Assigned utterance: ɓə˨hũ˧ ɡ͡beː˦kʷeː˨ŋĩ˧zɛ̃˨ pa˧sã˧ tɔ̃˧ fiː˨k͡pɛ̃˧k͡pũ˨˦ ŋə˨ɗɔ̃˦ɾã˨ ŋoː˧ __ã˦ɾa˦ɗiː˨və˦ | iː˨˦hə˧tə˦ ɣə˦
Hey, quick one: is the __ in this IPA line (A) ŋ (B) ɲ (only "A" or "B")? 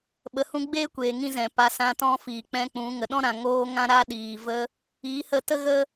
A